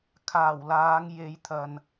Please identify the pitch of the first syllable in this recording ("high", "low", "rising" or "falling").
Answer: low